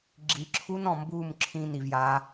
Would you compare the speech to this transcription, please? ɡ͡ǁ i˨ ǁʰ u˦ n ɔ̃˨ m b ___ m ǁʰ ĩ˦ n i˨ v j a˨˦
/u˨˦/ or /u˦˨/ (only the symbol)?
u˦˨